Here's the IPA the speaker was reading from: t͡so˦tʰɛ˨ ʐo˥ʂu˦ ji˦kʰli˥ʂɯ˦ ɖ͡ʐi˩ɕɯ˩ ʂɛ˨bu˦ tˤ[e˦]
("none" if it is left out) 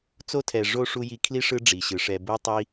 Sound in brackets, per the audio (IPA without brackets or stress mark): i˦